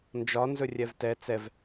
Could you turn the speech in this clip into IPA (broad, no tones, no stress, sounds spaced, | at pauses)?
n d͡ʒ ɒ n z ɵ rʲ ɛ v t ɛ t͡s ɛ v